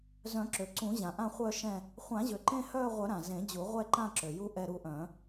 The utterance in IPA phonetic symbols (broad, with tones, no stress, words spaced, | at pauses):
zœ̃˨˩˦ǁø˩ǀũ˨˩˦ʑã˩ ʔã˦˨χʷœ˦˨ ʃɛ̃˦˨ | χʷã˨˩˦ʑø˩ǃẽ˦˨ hœː˦˨ʁʷœ˨˩˦ ɾã˩zẽ˨˩˦d͡ʑu˨˩˦ ʁʷɛ˦˨ǃã˦˨ ǁø˩ju˦˨ ʔɛ˦˨ɾu˦˨ʔœ̃˨˩˦